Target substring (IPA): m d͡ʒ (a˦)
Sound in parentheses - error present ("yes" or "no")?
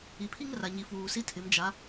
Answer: yes